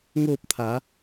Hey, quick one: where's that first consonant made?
velum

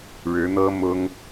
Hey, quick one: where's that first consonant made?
retroflex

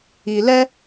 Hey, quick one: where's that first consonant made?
tongue tip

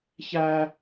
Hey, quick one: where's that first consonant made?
palate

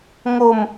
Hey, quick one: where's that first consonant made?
velum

